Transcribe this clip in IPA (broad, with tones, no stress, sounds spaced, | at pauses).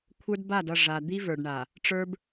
kʷʰ ə˞˦ d b a˦˨ d ʌ˦˨ ʐ a˨ d̪ i˦ v ə˞˨ ɖ ɳ a˨ | ʈ͡ʂ ə˞˦ b